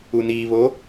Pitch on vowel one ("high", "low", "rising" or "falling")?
low